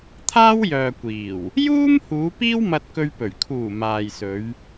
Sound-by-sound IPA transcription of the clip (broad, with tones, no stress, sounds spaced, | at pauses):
t̪ʰ aː˥ w j œː˨ kʷ iː˨˩ w | j uː˥ m h uː˨˧ p iː˥ w m ɐ˧ t̚ k ɵ˧ ɥ p ɵ˨˩ ɥ kʰ uː˨˩ m aː˨ j s ɵ˨˧ ɥ